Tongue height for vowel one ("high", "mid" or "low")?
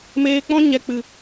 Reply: mid